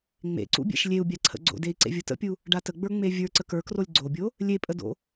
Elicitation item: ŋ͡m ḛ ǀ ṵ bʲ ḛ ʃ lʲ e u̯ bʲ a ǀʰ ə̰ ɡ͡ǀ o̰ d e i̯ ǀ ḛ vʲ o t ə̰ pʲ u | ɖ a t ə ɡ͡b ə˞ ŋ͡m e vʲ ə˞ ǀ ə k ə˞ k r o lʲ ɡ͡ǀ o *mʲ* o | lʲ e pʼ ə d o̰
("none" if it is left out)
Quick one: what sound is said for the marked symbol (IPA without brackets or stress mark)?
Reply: bʲ